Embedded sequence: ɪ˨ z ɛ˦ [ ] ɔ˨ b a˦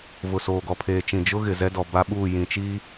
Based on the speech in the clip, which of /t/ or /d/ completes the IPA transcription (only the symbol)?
d